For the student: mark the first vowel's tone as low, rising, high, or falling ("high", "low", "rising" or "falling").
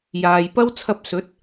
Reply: low